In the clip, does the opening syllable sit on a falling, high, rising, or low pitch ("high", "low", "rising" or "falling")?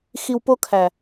low